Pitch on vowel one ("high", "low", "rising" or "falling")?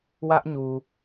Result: high